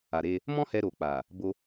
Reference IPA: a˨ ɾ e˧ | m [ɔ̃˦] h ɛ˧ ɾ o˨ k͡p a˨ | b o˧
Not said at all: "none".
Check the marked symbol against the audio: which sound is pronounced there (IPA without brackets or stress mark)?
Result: ɔ̃˦